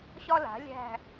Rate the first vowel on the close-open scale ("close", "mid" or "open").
open